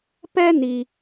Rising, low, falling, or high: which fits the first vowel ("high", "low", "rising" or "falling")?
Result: high